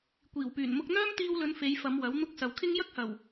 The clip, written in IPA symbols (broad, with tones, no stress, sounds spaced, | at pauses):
kʷ iː˨˩ w p yː˨˩ n m ʊ˧ k̚ n̪ œː˥ m t̪ iː˧ w l ɵ˨˧ n f e˨˧ j f ɐ˨˧ m w ɐ˨˥ w n̪ ʊ˥ k̚ s ɐ˨ w kʰ ɪ˥ ŋ j ɐ˥ k̚ h ɐ˨˩ w